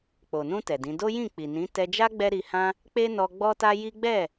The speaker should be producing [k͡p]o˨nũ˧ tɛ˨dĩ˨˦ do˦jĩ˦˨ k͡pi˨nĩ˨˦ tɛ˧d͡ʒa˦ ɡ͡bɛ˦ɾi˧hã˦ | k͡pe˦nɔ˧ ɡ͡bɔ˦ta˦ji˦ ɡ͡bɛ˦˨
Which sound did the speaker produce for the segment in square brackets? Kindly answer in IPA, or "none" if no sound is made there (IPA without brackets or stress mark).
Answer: k͡p